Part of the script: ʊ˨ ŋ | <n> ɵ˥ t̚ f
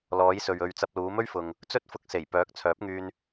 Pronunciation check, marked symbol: incorrect: t͡s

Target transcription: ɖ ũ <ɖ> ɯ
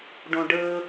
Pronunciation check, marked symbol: correct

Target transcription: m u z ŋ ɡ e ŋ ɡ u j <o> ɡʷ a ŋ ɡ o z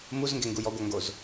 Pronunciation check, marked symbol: incorrect: ɔ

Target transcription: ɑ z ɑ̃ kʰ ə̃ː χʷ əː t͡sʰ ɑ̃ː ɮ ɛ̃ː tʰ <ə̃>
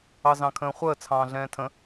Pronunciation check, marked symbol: correct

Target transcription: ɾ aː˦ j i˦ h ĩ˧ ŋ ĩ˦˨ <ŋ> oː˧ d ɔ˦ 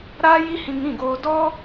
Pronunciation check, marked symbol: incorrect: ɡ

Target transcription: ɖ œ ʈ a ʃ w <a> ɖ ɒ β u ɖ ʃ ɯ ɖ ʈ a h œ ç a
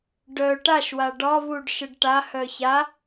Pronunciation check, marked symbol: correct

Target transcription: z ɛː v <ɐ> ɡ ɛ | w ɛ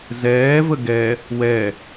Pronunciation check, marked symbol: incorrect: ə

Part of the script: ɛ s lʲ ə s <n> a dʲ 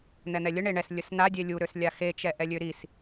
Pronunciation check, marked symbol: correct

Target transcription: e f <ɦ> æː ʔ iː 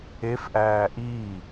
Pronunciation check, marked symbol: incorrect: ʔ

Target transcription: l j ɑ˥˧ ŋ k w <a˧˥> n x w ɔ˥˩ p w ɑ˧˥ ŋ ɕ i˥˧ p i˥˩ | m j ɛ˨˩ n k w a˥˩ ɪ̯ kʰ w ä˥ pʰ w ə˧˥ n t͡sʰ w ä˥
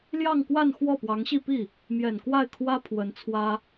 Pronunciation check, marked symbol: incorrect: a˥˧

